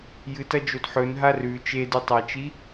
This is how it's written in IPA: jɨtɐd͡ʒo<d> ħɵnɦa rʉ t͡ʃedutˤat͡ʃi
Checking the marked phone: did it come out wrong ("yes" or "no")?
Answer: no